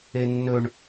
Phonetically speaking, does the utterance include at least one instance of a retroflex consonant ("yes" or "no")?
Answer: yes